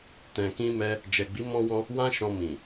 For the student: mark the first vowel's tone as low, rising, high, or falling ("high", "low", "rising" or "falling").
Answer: low